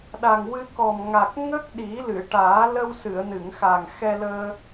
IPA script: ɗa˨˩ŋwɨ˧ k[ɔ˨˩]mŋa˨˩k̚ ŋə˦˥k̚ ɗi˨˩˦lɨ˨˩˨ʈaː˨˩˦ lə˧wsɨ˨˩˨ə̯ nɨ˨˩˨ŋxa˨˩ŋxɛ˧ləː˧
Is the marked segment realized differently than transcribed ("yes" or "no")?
no